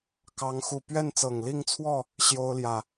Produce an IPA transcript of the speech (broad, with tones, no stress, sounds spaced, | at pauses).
k ɑ˦ ŋ x u˥˨ p ɥ ɛ˥˨ n t͡s ɤ˨˩ ŋ l i˥˨ ŋ t͡sʰ w ɔ˥˨ | ɕ j o˦ ʊ̯ l j ä˨˩